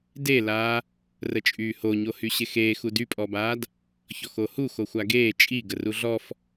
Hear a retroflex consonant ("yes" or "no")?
no